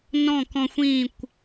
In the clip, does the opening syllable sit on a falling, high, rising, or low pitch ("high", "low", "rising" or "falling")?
falling